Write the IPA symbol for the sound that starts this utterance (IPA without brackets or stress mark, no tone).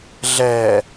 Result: ɮ